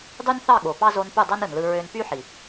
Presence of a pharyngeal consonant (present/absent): present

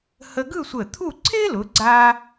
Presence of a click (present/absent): present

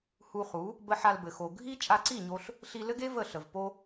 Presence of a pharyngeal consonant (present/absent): present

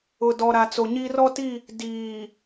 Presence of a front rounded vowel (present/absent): absent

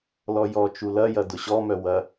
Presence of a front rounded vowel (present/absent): present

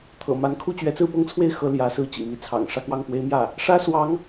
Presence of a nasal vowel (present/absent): absent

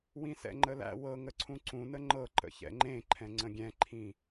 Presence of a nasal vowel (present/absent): present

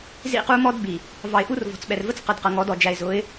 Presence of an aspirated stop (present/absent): absent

